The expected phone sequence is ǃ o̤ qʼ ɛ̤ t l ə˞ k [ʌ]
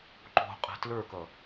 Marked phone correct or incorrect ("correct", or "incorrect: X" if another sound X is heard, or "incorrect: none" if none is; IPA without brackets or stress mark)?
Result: correct